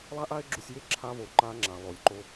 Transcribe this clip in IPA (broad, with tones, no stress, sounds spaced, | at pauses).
lˠ a˥ ʔ a˥ e̯ ɡ͡ǁ u˧ sʲ j e˥ ǁʰ a˧ β o˩ ǃ a˧ ŋ͡ǁ a˩ lˠ o˩ lʲ ǃ o˧